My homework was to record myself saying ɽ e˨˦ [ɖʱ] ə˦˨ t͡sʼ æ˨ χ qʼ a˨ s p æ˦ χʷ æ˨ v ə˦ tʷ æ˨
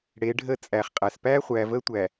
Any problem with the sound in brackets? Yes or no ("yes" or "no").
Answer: no